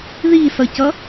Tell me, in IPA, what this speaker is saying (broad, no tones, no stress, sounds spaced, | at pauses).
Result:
ð i s ʌ c ʌ